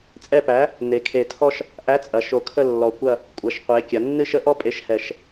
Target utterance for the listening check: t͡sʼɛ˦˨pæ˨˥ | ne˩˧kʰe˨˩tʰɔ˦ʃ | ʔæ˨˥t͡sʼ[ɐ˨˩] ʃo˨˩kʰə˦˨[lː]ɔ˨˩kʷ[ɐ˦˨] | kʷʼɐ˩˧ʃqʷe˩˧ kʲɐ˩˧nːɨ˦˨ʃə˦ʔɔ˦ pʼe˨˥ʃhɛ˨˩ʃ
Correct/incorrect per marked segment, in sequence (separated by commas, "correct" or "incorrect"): incorrect, correct, correct